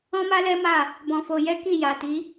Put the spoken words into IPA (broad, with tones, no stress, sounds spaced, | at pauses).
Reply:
ɔ̃˦ m a˦ l ɛ˦ m a˦˨ | b ɔ̃˨ f o˨ j ɛ˨˦ k i˦˨ j a˨ t i˨˦